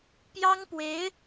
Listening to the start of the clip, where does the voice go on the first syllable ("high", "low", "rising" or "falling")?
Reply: high